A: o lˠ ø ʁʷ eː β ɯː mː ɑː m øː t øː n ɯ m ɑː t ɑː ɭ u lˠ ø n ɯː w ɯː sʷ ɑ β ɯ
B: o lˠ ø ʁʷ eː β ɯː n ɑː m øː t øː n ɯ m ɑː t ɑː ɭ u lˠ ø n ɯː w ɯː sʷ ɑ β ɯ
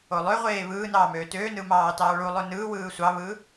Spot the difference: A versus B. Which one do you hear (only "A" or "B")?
B